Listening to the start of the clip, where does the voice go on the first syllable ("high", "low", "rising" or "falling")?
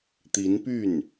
rising